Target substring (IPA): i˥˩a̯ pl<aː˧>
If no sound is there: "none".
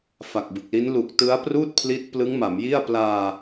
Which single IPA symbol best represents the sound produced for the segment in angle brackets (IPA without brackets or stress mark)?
aː˧